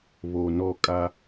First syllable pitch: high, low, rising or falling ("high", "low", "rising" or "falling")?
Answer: low